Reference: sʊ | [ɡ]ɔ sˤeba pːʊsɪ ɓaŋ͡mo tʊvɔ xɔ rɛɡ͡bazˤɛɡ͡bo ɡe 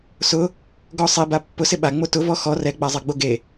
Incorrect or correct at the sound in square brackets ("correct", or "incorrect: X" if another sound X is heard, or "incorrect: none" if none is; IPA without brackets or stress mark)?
correct